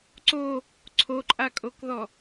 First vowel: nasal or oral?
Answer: oral